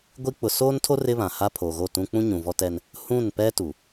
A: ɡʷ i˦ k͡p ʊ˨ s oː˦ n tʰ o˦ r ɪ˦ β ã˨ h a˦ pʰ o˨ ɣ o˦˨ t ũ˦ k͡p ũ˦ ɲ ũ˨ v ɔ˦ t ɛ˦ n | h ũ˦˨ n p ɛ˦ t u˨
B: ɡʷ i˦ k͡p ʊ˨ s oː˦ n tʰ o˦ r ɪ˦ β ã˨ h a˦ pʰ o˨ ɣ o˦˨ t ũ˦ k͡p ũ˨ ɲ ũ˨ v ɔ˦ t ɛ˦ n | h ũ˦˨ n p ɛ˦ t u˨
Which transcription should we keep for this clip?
A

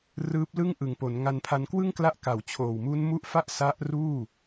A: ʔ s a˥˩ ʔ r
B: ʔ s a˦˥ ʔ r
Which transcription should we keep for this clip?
B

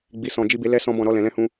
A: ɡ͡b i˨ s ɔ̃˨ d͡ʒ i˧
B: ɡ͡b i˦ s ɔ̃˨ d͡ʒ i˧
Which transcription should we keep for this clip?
A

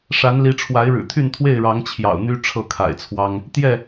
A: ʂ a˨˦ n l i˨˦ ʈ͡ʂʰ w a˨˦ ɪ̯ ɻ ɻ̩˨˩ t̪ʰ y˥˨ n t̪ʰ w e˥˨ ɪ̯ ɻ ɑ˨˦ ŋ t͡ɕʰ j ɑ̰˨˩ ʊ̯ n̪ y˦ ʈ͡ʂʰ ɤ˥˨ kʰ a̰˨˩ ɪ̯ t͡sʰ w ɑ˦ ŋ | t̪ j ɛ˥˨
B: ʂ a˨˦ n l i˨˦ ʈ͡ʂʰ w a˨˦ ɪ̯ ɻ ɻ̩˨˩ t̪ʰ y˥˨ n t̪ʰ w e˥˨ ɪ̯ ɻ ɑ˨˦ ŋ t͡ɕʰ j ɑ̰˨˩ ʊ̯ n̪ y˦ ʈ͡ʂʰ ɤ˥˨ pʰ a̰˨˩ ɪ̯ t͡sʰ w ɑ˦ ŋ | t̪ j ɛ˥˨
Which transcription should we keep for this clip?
A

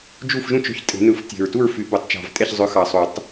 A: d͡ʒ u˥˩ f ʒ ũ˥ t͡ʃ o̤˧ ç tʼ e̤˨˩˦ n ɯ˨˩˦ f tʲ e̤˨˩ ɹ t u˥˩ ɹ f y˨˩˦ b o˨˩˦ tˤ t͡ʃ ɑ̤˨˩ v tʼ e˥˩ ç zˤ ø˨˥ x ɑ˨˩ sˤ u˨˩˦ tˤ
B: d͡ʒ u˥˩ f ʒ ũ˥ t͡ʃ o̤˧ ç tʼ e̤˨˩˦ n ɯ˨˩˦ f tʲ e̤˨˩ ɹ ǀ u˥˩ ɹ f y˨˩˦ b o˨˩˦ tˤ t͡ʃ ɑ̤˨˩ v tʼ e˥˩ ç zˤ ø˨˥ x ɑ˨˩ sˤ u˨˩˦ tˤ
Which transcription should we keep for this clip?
A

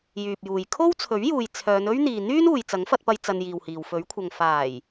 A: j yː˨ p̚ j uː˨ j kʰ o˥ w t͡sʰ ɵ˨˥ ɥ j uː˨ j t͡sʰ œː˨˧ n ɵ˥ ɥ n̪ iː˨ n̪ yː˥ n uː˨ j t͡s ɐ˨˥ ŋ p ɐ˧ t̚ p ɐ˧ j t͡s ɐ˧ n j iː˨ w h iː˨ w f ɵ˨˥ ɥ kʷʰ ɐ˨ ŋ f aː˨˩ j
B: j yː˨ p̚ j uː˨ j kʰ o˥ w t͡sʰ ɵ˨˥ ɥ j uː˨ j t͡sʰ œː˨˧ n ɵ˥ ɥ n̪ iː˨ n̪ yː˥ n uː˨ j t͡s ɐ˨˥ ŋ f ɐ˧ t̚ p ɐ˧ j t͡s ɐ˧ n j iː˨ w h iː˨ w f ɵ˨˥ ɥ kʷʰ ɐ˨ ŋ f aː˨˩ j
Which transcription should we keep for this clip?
B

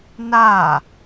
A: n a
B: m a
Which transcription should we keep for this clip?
A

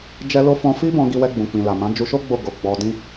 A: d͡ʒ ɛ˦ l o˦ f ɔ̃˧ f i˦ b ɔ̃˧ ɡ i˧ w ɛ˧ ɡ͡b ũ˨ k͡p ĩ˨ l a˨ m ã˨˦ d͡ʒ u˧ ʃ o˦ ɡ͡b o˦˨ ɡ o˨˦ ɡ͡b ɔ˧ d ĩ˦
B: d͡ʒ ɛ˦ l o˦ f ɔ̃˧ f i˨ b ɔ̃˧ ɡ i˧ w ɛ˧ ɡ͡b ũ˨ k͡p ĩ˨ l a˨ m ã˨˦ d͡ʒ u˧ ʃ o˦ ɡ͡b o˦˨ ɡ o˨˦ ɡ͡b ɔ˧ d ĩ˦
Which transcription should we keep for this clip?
A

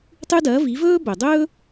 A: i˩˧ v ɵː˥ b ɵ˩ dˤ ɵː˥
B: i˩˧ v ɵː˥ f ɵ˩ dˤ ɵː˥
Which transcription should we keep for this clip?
A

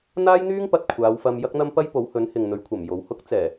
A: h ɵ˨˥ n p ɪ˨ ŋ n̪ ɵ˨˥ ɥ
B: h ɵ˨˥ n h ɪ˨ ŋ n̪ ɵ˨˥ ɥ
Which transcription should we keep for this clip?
B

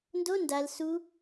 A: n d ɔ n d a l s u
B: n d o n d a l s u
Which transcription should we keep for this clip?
B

